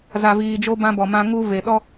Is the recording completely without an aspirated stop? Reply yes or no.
yes